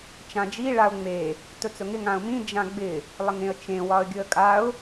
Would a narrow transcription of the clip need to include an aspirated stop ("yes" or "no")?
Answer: no